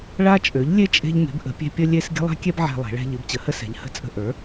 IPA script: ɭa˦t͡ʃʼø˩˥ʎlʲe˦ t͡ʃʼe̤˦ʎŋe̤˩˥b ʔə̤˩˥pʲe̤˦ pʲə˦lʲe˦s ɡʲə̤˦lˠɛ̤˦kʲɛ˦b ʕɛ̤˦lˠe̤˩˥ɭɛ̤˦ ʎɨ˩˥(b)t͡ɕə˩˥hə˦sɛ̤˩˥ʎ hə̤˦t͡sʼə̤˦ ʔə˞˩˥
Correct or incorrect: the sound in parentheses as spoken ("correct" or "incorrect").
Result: correct